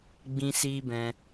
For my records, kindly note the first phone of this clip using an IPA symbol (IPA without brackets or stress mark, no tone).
ɡ͡b